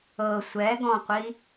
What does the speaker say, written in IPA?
ɤ sʷ ɛ ɡ ɔ̃ qʷ i

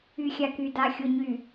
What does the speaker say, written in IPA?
y˨ xʲ a˨ k y˨ d a˨ xʲ o˨ ɲ y˨

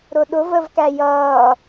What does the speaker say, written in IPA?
ɾ ʊ ɗ ʊ v ə v k æ j ʌː

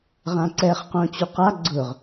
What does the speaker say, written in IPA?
ʁ ã ǀ ɛ χ q õ t͡ɕ u q a ɡ͡ǀ ʊ ʁ

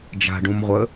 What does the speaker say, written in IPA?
d͡ʒ a̤ ɖ ũ m ʁʷ ə

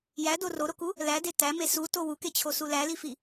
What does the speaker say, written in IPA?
j æ d o r o ɾ o k u | l æ d e t æ m e s u t o w u k e t͡ɕʰ o s u l æ l i f i

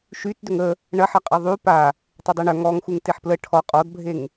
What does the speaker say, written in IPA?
ʃ y t d ʏ ŋ ə | ɳ ɐ ħ ɐ qʼ ɐ ðˤ y p a | tˤ i dˤ e ɳ œ ŋ ɔ ŋ x u ŋ t e ħ p l ə ʈʰ ɔ qʼ ɔ d bʱ e ŋ

